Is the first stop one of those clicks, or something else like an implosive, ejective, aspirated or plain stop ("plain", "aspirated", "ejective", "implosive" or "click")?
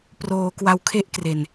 plain